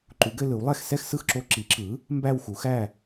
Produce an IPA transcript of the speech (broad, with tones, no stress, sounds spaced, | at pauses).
ǃ u˩˥ ɡ ɘ˧ l ɯ˩˥ w lˠ ɛ˥˨ x s ɛ˥˨ x s ɯ˥˨ x ǁ o˧ ǁ i˩˥ ǁ ɯ˩˥ | m b æ˥˨ w x u˩˥ x æ˥˨